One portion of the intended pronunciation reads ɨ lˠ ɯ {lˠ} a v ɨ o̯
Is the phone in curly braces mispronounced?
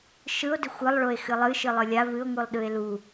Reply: yes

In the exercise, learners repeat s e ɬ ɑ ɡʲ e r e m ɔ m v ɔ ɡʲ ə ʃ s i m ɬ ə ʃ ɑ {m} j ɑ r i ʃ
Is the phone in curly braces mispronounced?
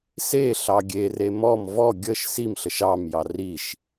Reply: no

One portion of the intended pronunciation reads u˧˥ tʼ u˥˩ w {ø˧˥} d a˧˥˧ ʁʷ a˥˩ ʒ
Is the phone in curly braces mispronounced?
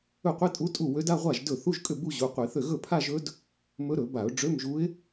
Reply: no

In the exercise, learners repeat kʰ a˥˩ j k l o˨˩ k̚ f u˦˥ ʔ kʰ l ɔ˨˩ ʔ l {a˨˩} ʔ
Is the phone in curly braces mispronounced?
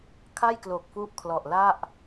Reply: yes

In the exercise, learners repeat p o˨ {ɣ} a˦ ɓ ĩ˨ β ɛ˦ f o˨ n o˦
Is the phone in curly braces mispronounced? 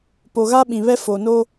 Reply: no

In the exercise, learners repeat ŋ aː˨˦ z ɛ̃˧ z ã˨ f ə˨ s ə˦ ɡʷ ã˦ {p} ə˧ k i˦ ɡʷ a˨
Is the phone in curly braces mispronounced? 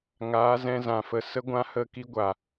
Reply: yes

